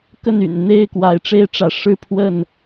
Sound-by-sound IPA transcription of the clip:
k ə˥˨ n y̰˨˩ n n̪ e˥˨ ɪ̯ k w a˨˦ ɪ̯ ʈ͡ʂ e˦ ɪ̯ ʈ͡ʂ ä˨˦ ʂ ɻ̩˦ pʰ w ə˥˨ n

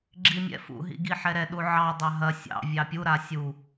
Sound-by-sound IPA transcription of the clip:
ɡ͡ǁ i mʲ ɛ̰ f ṵ ɦ ḭ ɡ i ħ ɛ ɾ ɛ ɗ u ʕ ɑ dˤ ɑ ɦ ɐ sʲ ɑ̰ vʲ ɑ pʲ u ɾ a sʲ u

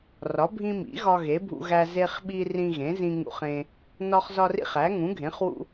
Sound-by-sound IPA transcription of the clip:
r ɒ˩˥ bʱ ĩ˦ m ḭ˩˥ ɣ ɒ˦ ɣ e˩˥ bʱ ṵ˦ ɣ æ˦ z e˦ χ ɓ i˦ r ĩ˦ ɣ ẽ˩˥ z ĩ˦ ŋ ṵ˦ χ ẽ˦ | n ɒ˦ χ z ɒ˦ r ḭ˦ χ æ˩˥ ŋ ũ˩˥ ɡʱ ẽ˩˥ χ w ṵ˦

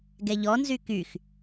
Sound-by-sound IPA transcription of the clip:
ɡ ɛ ʎ ɔ n z y k y x

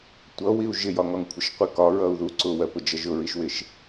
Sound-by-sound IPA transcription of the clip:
tʷ ʌ w i u̯ ʒ ɪ j ɒ ŋ ɒ ŋ kʷʰ ɪ ʃ qʷ i k ɒ ɹ ʌ u̯ ð u ǀ ʊ w ɜ p ʊ d͡ʒ ʌ ʒ ʊ ɹ i ʃ w ɪ ʃ

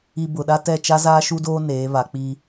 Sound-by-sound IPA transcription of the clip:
i˨ b ʊ˨ ɗ a˦ t ɛ˦˨ t͡ʃ a˦ z aː˦ ʃ u˦ d oː˦ n eː˨˦ β a˨ k͡p i˦

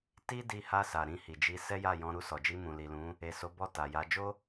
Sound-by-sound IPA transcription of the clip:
t i˦ d i˧ h a˧ s a˨ ɾ ĩ˧ h i˨ d͡ʒ i˧ s ɛ˦ j a˦˨ j ɔ̃˧ ɾ u˧ s ɔ˨ d͡ʒ i˧ m ũ˨ l i˨ l ũ˨˦ | e˨ s o˨˦ b ɔ˦˨ t a˨ j a˨˦ d͡ʒ o˦

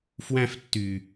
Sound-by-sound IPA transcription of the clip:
f w æ̃ f tː y

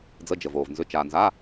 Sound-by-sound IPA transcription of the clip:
d͡z ə˧˥˧ d͡ʒ ə˨ v oː˨ v n z ʏ˧˥˧ t͡ʃ aː˨ n z a˧˥˧

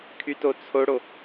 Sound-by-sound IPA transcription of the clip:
kʰ y t o t͡sʰ o ɽ o

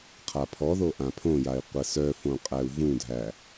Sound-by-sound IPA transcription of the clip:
qʰ a pʰ ɔ ð o ʔ ã pʰ õ j a i̯ qʷ ə s œ f õ qʼ æ u̯ v ũ dʱ æ

